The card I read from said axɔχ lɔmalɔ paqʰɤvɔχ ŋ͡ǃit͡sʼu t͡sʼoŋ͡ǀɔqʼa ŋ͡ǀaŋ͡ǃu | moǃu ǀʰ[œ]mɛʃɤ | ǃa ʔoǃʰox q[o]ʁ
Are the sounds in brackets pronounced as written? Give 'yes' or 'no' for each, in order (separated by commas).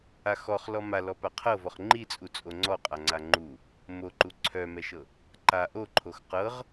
yes, no